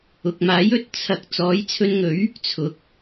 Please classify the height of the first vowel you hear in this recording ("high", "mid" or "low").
high